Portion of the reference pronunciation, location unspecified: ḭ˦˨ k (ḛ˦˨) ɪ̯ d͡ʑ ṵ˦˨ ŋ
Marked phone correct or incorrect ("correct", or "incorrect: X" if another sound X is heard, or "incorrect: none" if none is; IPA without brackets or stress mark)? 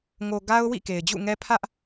incorrect: e˨